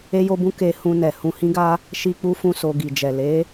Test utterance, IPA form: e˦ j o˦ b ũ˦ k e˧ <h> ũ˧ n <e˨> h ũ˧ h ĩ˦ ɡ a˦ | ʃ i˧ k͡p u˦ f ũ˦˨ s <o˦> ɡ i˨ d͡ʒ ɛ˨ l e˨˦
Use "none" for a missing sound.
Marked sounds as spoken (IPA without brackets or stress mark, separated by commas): h, ɛ˨, o˧